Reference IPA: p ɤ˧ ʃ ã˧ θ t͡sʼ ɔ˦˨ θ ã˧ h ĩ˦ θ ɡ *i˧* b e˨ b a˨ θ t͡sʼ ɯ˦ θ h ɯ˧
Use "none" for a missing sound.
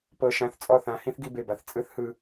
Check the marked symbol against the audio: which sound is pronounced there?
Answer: i˧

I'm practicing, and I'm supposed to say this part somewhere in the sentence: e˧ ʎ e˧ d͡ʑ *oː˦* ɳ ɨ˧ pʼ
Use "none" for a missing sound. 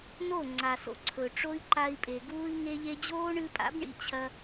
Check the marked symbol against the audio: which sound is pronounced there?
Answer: oː˦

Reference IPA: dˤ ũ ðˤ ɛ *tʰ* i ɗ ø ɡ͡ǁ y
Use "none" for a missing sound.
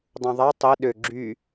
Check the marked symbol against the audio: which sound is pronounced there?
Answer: tˤ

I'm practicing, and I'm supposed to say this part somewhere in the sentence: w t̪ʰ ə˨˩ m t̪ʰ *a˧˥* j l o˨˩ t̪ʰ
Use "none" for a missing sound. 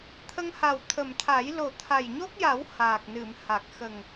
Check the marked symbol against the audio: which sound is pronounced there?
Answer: a˨˩˦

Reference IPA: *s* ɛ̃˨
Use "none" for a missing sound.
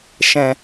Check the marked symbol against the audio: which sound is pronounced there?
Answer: ʃ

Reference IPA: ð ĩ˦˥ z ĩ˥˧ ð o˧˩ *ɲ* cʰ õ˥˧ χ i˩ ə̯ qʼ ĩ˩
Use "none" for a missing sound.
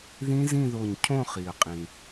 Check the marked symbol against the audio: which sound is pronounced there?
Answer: ɲ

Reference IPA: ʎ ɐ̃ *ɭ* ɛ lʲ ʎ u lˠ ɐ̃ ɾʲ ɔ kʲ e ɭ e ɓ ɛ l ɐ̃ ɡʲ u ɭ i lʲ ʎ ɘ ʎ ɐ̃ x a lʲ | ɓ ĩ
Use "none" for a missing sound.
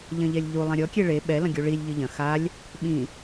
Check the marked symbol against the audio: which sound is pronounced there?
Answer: ʎ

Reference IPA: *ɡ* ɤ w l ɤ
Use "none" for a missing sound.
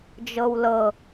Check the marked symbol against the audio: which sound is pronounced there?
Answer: d͡ʒ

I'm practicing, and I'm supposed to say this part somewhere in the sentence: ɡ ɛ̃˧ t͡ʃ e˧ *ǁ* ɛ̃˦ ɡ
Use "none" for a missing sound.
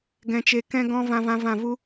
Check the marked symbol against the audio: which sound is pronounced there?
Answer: k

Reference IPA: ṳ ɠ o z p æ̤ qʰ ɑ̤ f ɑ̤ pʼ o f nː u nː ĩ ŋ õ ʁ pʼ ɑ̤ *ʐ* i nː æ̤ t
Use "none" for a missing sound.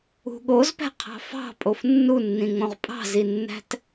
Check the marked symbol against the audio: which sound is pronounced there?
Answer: z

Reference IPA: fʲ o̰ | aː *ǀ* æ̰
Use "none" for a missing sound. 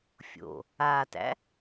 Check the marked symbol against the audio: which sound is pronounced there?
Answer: t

